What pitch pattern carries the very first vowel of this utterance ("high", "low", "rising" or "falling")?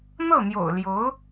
falling